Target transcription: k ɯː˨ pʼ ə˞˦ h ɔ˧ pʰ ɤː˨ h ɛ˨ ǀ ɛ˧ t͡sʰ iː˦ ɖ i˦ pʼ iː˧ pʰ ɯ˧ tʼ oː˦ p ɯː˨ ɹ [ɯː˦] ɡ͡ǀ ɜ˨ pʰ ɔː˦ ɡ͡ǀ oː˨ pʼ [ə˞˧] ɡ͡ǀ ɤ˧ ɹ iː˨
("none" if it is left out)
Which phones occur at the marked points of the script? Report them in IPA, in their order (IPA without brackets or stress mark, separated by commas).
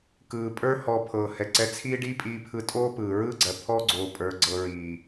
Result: ɯː˦, ə˞˧